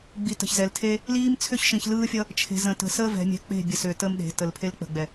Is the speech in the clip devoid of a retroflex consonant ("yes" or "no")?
yes